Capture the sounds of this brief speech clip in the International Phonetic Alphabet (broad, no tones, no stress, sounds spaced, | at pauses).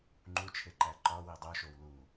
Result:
ŋ͡ǃ u t͡ʃʰ e ǃ æ ǃ ɒ w i dˤ u ʃ o w l u